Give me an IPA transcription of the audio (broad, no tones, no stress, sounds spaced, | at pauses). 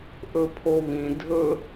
ʔ ɵ pʰ o β ĩ dʱ ɵ